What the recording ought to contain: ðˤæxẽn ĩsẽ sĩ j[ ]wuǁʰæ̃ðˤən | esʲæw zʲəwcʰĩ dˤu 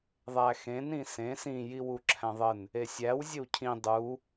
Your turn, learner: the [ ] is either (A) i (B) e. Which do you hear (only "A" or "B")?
A